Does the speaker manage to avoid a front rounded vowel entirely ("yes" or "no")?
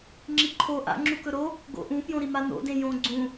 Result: yes